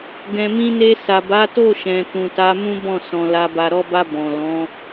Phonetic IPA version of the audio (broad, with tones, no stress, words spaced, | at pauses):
ɡɛ̃˨mĩ˧ne˧ sa˨ba˨˦to˦˨ʃɛ̃˨ tũ˨ta˨˦mũ˦ bɔ̃˦˨sɔ̃˨la˧ ba˨ɾɔ˧ba˧ bɔ̃˨lɔ̃˨˦